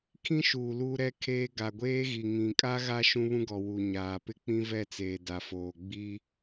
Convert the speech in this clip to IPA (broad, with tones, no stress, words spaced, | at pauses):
kʰĩ˦ʃuː˨ luː˦ɾɛ˦kʰeː˦ ɡa˨ɡʷeː˦ɣi˨ ŋĩ˨kʼa˦ɣa˦ ʃũ˦βũ˦ɡɔ˨ wu˨ɲaː˨ pɪ˦k͡pĩ˦vɛ˦˨t͡seː˨ da˨foː˨ ɡ͡bi˦